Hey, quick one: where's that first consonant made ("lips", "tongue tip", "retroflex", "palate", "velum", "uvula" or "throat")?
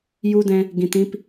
palate